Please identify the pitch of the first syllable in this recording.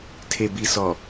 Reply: low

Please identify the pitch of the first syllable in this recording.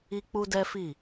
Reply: high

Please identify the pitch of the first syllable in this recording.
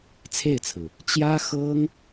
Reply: falling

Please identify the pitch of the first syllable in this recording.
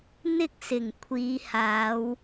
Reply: high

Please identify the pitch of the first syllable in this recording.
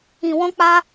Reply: low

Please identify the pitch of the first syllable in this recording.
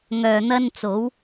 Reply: low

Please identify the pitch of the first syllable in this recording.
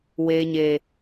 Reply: low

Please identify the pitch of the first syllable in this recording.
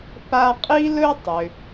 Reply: high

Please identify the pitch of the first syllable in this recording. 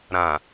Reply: low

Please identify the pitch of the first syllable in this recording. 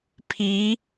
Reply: rising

